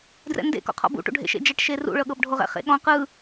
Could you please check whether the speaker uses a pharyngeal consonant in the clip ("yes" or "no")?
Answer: no